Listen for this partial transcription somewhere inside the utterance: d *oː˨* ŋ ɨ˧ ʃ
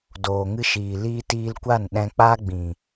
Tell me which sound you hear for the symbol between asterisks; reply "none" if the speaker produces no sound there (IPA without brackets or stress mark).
oː˨